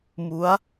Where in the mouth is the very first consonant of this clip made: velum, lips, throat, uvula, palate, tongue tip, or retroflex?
lips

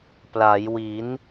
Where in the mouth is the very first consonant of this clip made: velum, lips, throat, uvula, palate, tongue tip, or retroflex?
lips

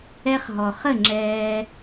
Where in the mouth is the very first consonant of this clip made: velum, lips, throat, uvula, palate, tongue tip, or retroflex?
uvula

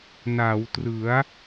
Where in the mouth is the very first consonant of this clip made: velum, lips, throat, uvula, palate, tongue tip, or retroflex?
tongue tip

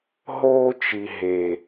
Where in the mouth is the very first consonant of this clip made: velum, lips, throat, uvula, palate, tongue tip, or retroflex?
throat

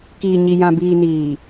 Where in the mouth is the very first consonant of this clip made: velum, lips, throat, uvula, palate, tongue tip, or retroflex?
velum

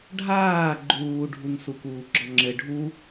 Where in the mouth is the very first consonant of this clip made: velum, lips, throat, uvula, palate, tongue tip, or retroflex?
retroflex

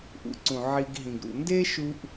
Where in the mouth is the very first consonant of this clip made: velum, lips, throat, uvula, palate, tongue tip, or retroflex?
throat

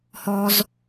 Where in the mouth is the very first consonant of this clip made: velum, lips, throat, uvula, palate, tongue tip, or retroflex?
throat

